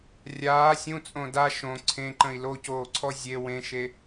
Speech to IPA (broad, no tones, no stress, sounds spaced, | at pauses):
rʲ aː sʲ ũ t͡sʼ õ d a ʃ õ ǀʰ ẽ ǃ ə̃ i̯ l o c oː ǀʰ ɔ zʲ e w ẽ ʃ e